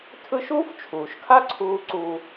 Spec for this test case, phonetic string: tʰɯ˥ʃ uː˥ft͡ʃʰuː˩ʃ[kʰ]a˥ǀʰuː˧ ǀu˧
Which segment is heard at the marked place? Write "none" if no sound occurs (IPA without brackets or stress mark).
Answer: kʰ